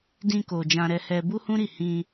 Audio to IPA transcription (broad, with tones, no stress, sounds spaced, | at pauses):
d ĩ˧ k o˨ d͡ʒ ã˧ ɾ ɛ˧ h ɛ˧ b u˦ h ũ˦ ɾ i˦˨ h ĩ˧